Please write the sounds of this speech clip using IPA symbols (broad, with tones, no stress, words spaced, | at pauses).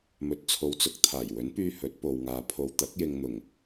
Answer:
mɵ˨t̚t͡sʰo˨wt͡sʊ˧k̚ t̪ʰaː˨˩j wɵ˨˥npyː˧ hɵ˨˥t̚po˨wŋaː˨ pʰo˨wt̪ɐ˨˥k̚jɪ˨ŋn̪ʊ˨˩ŋ